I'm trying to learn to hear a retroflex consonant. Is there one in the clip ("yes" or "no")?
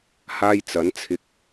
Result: no